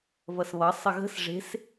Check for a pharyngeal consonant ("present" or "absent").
absent